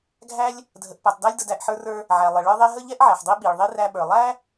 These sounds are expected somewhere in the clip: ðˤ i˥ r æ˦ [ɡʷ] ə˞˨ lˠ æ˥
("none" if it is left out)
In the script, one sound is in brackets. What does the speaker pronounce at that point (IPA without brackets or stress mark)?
ɓ